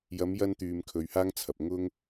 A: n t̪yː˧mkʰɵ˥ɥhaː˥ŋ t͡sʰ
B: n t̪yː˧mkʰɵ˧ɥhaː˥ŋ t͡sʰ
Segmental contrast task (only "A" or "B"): B